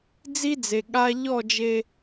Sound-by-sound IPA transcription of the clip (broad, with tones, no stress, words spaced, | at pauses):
d͡zi˦d͡ze˨ ɠa˦ ʎɔ˦˨d͡ʒe˦